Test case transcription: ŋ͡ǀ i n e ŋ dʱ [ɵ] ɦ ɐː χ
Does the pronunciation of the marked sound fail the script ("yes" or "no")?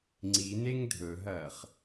no